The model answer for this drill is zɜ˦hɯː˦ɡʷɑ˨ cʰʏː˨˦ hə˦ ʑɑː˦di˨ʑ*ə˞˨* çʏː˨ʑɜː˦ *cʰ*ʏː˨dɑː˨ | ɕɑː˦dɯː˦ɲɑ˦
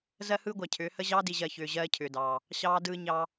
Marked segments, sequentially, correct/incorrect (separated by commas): incorrect, correct